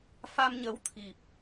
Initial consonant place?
labial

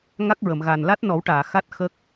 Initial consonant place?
velar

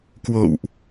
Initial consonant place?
velar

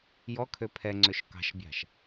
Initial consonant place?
palatal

